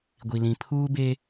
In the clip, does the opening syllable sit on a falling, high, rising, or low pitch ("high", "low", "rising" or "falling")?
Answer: low